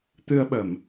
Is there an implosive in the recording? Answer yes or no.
yes